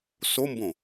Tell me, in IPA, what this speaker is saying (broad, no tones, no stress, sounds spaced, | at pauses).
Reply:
s o m b õ